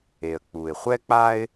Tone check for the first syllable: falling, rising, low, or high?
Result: low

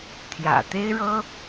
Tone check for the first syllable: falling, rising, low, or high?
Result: low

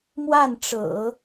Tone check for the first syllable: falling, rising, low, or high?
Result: falling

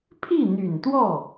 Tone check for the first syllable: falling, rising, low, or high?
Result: falling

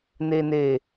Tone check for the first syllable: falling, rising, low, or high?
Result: low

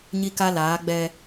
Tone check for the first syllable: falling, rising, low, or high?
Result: high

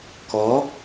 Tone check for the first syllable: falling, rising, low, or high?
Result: rising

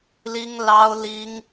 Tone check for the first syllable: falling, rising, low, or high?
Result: high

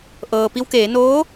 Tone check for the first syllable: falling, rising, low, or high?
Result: low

